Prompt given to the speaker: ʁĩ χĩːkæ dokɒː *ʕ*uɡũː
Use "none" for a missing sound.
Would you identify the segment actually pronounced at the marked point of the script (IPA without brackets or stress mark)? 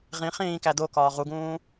ʁ